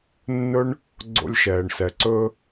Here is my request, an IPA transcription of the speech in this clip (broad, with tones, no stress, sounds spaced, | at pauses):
nː ɵ˦ ɳ | ɡ͡ǀ o̰˧ lʲ ʃ ɛː˨ ɳ s ɛ˨ ǀ ɵ˦